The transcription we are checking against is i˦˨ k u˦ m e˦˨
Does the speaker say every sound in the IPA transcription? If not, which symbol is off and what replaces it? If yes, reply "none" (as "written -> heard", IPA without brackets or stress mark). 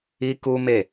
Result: i˦˨ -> i˦